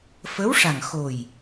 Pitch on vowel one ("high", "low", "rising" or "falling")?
rising